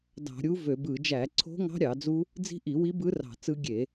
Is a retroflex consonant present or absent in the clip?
absent